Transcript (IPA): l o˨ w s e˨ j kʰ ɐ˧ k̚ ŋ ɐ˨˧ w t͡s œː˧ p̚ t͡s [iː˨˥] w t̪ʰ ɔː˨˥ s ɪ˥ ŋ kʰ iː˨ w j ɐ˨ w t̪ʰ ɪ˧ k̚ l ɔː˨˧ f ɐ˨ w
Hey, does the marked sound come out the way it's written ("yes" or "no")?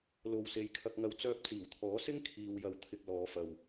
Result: no